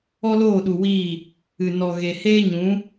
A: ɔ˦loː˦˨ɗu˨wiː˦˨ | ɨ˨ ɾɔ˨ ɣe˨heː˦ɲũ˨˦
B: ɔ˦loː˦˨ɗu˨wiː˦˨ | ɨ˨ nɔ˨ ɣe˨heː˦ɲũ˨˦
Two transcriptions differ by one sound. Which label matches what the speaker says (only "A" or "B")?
B